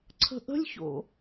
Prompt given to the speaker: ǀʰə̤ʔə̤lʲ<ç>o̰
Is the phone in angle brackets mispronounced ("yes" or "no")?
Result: no